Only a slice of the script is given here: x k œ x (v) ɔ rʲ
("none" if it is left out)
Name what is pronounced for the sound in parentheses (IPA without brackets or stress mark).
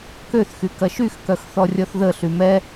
θ